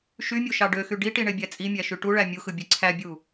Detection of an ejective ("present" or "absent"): present